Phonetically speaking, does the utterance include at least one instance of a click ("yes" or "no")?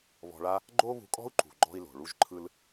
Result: yes